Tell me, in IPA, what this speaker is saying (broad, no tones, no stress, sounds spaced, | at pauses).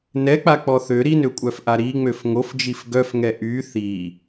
n ɛ k͡p a k͡p ɔ θ ø ɾ i n ø kʷʼ œ f ʔ a ɾ i ŋ͡m ø f ŋ o f d͡ʒ i f ɡ œ f ŋ ɛ ʔ y θ i